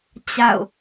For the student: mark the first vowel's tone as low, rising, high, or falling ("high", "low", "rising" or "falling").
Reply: falling